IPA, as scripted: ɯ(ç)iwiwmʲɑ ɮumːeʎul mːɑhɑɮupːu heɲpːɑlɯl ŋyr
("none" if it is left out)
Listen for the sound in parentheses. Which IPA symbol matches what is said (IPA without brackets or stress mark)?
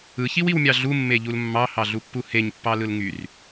ç